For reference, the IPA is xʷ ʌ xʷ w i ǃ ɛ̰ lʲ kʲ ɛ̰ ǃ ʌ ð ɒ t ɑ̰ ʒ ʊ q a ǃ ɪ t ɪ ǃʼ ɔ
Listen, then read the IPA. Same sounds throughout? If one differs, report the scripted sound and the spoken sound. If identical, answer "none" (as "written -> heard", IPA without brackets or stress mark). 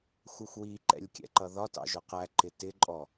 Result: a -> æ